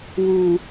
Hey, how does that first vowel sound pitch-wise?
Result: low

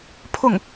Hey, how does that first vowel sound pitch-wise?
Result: falling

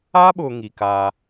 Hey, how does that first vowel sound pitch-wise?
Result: high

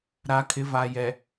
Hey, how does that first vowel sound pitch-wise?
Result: low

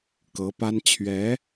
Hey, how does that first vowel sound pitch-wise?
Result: rising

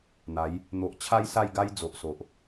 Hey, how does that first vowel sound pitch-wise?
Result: rising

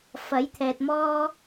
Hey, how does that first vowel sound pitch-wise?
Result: rising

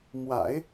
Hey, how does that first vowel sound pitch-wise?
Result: low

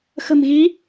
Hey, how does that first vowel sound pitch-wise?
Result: low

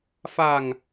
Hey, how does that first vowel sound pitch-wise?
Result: low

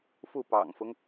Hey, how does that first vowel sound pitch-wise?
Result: falling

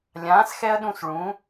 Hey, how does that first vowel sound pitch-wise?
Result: rising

